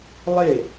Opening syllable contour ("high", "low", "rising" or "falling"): falling